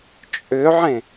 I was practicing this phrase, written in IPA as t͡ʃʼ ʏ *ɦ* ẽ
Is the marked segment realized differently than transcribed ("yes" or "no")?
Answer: yes